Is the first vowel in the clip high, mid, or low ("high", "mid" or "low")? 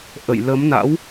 mid